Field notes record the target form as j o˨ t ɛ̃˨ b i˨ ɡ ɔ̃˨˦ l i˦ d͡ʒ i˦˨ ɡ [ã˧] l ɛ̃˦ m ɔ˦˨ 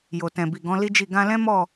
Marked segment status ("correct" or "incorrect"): correct